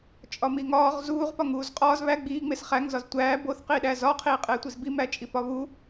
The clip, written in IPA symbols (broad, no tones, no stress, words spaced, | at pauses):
t͡ʃʼɒmiŋɒːʁ zuːʁpɒŋ uːzqʼɒːz βæ ɡ͡biː ŋ͡mesχæŋ zɒztʷæː boθqiːɗæ zɒqʰiː qʼeːtʷizbi mæt͡ʃʼipɒβu